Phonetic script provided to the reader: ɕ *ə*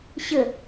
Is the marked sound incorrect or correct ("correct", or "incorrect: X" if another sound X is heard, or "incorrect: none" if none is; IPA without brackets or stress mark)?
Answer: correct